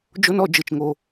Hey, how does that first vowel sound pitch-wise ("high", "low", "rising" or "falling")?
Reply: high